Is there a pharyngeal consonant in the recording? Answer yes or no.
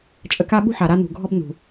yes